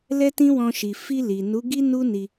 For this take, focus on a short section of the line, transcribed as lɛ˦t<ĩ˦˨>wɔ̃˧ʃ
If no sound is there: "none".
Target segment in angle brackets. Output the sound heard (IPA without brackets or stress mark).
ĩ˦